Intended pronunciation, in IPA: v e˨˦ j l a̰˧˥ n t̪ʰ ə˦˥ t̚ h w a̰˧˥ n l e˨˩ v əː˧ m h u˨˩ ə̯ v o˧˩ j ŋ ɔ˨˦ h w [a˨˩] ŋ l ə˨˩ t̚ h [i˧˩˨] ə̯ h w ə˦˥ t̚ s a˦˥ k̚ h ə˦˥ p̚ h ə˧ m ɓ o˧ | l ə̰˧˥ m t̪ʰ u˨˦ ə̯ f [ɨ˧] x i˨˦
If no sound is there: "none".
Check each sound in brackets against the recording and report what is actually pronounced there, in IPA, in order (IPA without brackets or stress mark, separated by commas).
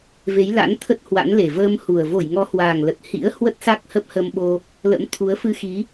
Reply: aː˨˩, ḭ˧˥, ɨ˧